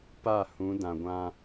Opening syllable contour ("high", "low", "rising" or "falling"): falling